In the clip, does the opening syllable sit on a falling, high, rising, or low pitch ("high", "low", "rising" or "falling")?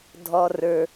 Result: high